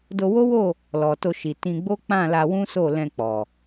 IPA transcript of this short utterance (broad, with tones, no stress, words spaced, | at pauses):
do˧wo˦wo˦˨ | lɔ˨ to˧ʃi˨ tĩ˧ ɡ͡bo˦k͡pã˦˨ la˧wũ˦so˦˨lɛ̃˧ k͡pɔ˨